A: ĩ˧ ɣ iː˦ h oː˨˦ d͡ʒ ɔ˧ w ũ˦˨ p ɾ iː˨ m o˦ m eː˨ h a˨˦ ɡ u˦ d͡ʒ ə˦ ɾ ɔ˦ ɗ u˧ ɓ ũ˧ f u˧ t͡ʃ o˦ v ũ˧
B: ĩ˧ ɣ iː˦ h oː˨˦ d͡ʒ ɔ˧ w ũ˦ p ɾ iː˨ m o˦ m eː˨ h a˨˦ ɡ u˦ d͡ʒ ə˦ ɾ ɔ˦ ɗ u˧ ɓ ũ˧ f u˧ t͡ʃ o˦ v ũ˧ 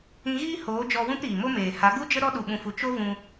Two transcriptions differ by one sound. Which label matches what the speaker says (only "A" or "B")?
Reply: B